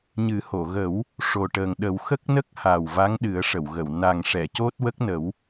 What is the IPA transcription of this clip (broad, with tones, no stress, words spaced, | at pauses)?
ɲɨ˨˩˦ho˨˩˨ɣə˨˩˦w | ʂo˨˩ʈəː˨˩ŋɗə˨˩˦w xə˦˥k̚nə˦˥k̚ha˨˩w va˧˥ŋɗɨ˨˩˦ə̯ʂə˨˩˨wɣə˨˩˨w na˨˩ŋʂɛ˨˩˨ co˦˥t̚wə˦˥k̚nə˨˩˦w